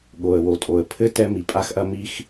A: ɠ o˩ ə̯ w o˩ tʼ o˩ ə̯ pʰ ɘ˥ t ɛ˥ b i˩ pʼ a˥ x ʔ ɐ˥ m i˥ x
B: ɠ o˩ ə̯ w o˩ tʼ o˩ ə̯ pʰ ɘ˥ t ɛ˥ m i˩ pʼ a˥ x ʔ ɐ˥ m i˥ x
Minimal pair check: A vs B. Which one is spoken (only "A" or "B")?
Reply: B